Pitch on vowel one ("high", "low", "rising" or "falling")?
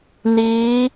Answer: rising